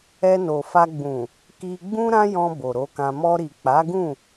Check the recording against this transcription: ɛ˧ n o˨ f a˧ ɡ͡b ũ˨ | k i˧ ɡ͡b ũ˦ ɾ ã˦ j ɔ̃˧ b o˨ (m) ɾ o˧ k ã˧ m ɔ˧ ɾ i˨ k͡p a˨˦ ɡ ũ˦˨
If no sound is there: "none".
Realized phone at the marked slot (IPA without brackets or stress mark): none